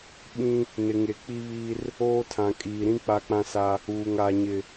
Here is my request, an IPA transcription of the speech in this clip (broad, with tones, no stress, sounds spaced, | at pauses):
ɓ ĩ˦ | n ɪ˨ ŋ e˨ k͡p i˦ β iː˦ r | oː˦ tʰ ã˨ kʼ iː˨ ɾ ĩ˦ k͡p a˦ k͡p ã˦ s a˦ | uː˨ ŋ a˨ ɲ ɪ˨